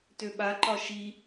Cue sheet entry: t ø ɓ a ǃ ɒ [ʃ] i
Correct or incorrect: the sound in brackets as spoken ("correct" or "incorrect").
correct